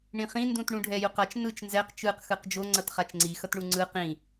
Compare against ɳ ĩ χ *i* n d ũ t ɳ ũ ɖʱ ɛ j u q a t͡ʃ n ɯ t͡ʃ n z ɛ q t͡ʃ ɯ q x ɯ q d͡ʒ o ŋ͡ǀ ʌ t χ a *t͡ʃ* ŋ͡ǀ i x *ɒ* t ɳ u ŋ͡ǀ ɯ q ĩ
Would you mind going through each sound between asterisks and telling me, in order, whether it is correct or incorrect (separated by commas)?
incorrect, correct, incorrect